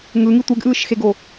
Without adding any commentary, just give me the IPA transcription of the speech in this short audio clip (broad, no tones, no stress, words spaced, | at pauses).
ŋɯŋi tʷeɡʔɯːʃxeɡo